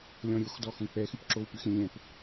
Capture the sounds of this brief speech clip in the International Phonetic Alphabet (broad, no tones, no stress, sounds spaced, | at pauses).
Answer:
lʲ ɔ̃ ɾʲ o x d ɔ x õ k͡p ɛ x y p ǁ o w p y x ɾʲ ɛ̃ lʲ ɛ̃ p